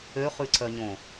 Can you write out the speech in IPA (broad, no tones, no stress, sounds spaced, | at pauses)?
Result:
ø χ ʉ ǀ œ ɲ õ